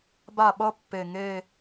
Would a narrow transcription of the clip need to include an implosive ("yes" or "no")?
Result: yes